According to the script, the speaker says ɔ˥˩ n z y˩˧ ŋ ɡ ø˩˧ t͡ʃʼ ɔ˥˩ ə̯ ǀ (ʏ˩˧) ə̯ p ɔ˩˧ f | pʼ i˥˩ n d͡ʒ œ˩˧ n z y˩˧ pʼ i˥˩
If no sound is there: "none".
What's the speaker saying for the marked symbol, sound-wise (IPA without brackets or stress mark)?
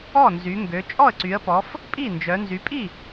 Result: y˩˧